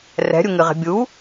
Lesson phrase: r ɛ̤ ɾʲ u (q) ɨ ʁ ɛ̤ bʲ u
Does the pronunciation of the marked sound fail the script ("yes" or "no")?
yes